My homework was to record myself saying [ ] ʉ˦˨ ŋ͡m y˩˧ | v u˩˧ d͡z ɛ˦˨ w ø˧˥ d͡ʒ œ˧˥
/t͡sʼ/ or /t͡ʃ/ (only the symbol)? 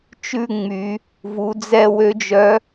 t͡ʃ